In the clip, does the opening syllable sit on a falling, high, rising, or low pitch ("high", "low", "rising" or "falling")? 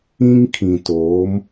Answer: high